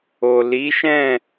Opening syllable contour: low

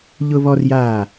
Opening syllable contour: high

